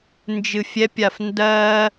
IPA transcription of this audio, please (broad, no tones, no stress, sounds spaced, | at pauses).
n d͡ʒ ɨ fʲ ɛ pʲ a f n d ɜ